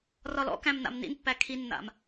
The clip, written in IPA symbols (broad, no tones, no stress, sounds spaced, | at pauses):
r ɒ l ɔ̰ k æ̃ m n̪ a̰ m n̪ ḭ n pː æ kʰ i nː a̰ m